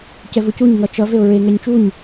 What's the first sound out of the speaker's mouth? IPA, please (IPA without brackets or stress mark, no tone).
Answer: c